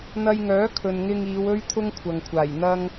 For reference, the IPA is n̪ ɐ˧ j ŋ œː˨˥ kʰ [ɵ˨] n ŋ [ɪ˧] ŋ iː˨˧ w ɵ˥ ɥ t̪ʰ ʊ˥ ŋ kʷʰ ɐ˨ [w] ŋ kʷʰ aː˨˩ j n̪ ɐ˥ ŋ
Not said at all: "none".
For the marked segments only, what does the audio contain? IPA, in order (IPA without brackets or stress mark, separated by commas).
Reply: ɵ˨, ɪ˧, none